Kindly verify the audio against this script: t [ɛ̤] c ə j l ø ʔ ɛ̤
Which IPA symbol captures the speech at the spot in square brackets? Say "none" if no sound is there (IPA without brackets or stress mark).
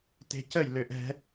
e̤